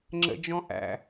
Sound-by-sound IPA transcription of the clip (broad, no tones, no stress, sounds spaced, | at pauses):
ŋ͡ǁ ə̰ d͡ʒ ɔ̃ ʔ æ̰